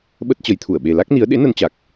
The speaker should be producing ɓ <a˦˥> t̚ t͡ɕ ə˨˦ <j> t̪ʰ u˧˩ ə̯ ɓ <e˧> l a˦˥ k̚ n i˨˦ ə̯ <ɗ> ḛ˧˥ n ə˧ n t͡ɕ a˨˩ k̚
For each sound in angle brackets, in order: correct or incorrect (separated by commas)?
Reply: incorrect, correct, incorrect, correct